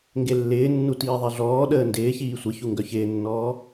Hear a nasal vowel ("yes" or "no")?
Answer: no